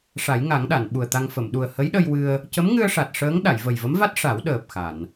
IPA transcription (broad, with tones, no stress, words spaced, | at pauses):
ʂa˨˩˦jŋa˨˩˦ŋɗa˨˩˨n ɓu˨˩ə̯t̪a˧ŋ fə˨˩˨mɗu˨˩ə̯ hə˧˥jɗə˧jwɨ˧ə̯ | cə˧˥mŋɨ˧ə̯ʂa˨˩t̚ ʂəː˧˥ŋ ɗa˨˩˨jvə˨˩jvə˧˥mva˦˥t̚ ʂa˨˩˦wɗəː˨˩p̚ xa˨˩˨n